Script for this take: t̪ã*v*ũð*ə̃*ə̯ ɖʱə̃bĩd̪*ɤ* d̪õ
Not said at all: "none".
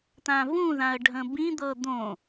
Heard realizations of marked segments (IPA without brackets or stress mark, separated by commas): v, ã, ɤ